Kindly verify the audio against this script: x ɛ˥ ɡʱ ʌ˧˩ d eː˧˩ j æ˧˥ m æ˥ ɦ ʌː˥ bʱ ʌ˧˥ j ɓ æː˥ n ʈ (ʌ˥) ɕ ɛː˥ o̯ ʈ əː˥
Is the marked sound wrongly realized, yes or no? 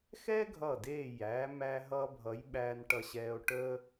no